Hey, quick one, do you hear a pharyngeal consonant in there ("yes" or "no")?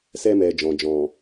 no